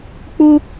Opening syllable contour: high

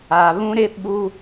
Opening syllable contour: low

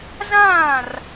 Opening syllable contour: falling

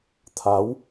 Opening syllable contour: rising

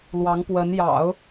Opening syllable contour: rising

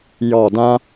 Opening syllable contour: falling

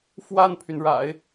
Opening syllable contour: falling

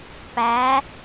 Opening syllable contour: rising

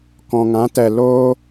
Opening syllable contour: low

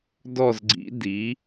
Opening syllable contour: falling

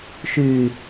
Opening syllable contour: low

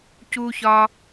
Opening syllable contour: high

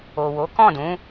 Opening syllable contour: low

